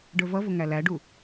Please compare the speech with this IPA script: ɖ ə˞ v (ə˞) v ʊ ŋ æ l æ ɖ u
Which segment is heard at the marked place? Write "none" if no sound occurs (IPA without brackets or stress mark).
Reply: ʌ